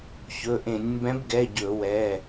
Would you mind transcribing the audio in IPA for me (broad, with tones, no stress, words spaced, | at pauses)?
çɵ˩˧˩ʔẽ˧˩˧nʲ mbɛ̃˨˦bɡɛ˩˧˩ ɟɵ˧˩˧wɛ˩˧˩